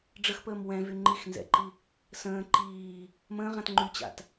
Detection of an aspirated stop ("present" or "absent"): absent